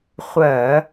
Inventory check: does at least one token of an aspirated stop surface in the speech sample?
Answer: no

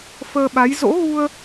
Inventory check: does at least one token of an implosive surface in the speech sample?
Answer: yes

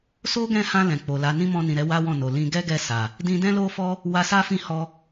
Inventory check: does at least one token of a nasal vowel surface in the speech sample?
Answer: yes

